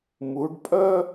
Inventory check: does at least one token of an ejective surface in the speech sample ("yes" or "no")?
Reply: yes